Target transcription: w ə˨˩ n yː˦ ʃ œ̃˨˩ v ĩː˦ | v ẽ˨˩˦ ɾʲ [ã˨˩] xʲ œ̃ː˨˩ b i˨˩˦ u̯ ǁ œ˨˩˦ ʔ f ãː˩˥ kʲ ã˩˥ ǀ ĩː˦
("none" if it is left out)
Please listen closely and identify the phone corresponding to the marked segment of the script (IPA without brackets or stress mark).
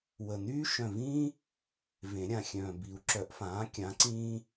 ã˨˩